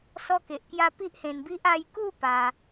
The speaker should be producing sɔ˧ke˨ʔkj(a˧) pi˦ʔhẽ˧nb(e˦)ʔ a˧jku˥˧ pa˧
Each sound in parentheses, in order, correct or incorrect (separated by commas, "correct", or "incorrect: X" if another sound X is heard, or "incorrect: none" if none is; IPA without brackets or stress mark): correct, incorrect: i˦